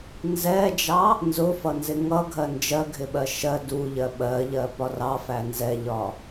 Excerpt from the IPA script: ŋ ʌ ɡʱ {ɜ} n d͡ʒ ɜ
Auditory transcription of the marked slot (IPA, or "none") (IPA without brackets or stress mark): ɜ